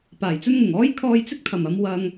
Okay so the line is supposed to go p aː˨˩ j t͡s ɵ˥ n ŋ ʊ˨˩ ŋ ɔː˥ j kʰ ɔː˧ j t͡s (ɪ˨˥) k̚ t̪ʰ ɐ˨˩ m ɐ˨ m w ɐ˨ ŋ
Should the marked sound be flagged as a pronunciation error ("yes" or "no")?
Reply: yes